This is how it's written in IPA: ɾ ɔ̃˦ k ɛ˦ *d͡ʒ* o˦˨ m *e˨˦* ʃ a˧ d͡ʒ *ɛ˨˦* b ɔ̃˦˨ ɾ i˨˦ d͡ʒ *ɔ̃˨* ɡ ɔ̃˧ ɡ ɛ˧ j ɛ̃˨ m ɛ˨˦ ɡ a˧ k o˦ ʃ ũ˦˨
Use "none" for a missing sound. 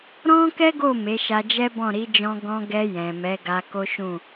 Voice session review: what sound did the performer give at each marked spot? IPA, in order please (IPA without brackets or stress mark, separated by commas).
ɡ, e˨˦, ɛ˦, ɔ̃˧